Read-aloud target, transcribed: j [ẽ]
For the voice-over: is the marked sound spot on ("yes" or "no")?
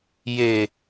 no